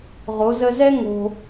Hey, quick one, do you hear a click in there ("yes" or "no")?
no